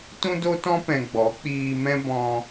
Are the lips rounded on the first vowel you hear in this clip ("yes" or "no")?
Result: yes